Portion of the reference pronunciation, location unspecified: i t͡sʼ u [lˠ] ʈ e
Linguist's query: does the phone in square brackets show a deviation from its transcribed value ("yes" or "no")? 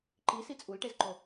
yes